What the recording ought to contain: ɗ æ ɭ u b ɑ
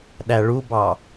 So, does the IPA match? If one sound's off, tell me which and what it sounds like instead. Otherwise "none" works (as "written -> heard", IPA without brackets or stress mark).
none